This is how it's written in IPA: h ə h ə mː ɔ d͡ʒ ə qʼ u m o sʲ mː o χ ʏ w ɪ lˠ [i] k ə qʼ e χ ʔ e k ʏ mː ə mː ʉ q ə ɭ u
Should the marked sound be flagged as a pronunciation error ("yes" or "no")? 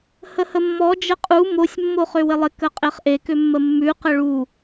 yes